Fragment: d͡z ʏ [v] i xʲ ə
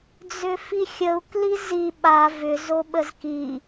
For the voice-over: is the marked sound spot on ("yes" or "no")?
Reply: no